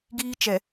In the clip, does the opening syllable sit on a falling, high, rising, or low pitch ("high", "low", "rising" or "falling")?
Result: high